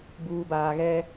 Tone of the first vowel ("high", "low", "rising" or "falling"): low